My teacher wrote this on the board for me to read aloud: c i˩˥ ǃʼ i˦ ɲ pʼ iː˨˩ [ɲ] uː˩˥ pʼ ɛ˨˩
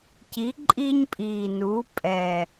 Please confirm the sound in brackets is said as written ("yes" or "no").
no